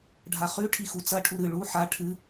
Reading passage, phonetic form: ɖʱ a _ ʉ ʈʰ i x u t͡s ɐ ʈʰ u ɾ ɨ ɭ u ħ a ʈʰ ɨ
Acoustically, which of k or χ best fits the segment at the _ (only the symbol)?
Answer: χ